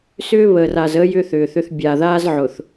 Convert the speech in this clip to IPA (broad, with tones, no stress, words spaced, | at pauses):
sʏː˦βəː˨ra˨zəː˦ jʏː˦θʏː˨θʏ˦θ bʲa˨ðaː˦zʕʊ˨θ